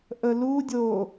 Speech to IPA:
ʔ ə l u dʲ o

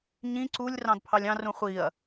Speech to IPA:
ɲ ĩ ǀ u lʲ r ɑ̃ d pʰ ɑ lʲ ɑ̃ r ũ χʷ i ɐ̯

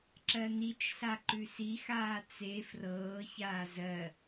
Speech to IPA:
ǁ ɜ n i t͡ʃ ɬ a ǃ ʉ s i x aː t͡s e f r ɤː ç aː z ɜ

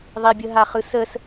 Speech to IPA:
ðˤ i bʲ ə ɦ a χ ɯ s ə s

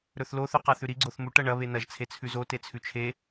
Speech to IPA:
ɾ ɵ θ l o θ ʉ q a θ ʉ ɾ i ɡ͡ǀ o θ m u ʈ ɐ ɳ ɐ β e n ɐ ʒ t͡sʰ e t͡sʰ ʉ z o t e t͡sʰ ʉ t͡ʃʰ e

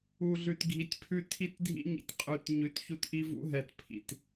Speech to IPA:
u˨ ɮ ʉ˨ t ɡʱ i˨ tʲ pʰ ʉ˦ tʰ i˦ t dʱ ḭ˦ ɲ ḭ˨ tʲ qʼ ʉ˨ t ɲ ʉ˨ t ç u˦ t ʔ i˦ v ṵ˦ ɦ ɛ˨ t pʰ ḭ˨ t

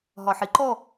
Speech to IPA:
ɦ ɒ ħ i ǃ ɔ

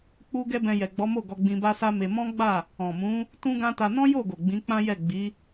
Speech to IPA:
k͡p u˧ ɡ ɛ˦ b ɛ̃˧ j ɛ˨ ɡ͡b ɔ˨˦ m o˦˨ ɡ ɔ˧ ɡ͡b ĩ˧ b a˦ s a˦ m e˧ m ɔ̃˦ ɡ͡b a˦˨ | ɔ̃˨ m ũ˨˦ | t ũ˦ ɡ ã˦ t a˧ n ɔ̃˦ j o˦˨ ɡ o˨ ɡ͡b ĩ˨˦ k͡p ã˦ j ɛ˦˨ ɡ͡b i˨˦

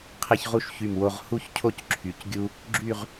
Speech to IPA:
qʰ ɛ˥ ç ʁ u˥ ʃ ç y˧˩ m w o˧ ʁ h u˥ ç cʰ o˥˧ c ǁʰ y˩˧ c ɡʲ u˧ | ɡ͡ǁ y˥˧ ʁ

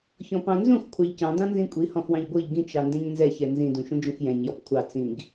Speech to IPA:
ç ɔ̃ p ɑ̃ n z ũ x kʷʰ ɑ ʎ c ɑ̃ d ɑ̃ n z ĩ kʷʼ i h ɔ̃ x w ɑ̃ ʎ ɡʷ ɤ ʎ ɡ ĩ t͡ʃ ɑ n d ɛ̃ ɲ n z ɛ ç ɛ n z ĩ d ũ ʃ ũ d͡ʒ ũ x j ɛ̃ ɲ j ɔ p kʷʰ ɑ t͡s ĩ ɡ

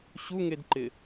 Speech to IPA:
ɕ u ŋ e d ǃ ɪ

